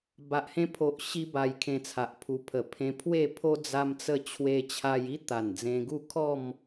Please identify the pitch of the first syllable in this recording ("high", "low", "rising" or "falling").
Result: low